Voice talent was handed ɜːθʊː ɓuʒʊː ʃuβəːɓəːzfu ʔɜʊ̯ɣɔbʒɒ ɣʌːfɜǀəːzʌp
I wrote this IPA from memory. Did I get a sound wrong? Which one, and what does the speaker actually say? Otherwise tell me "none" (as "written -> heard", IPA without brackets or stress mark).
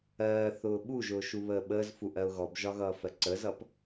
none